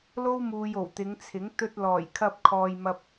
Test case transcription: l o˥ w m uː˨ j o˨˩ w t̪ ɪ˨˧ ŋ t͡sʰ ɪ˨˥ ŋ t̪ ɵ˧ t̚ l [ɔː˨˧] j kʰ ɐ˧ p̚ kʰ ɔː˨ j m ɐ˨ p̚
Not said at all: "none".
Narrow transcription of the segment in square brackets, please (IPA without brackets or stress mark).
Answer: ɔː˨˩